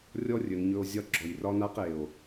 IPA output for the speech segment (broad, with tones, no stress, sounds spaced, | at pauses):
rʲ ɔ˦ rʲ ɵ˨ n ɲ ɵ˧ o̯ zʲ ɒ˦ ɡ͡ǁ ɔ˨ j r ɒ˦ n a˦ q e˨ o̯